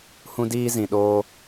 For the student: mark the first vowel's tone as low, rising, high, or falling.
high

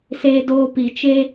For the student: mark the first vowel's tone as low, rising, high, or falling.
high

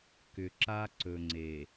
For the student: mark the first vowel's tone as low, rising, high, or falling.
low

